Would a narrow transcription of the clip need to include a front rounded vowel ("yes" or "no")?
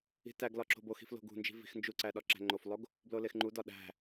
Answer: no